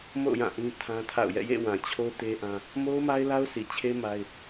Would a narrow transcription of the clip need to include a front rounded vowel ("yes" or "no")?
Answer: no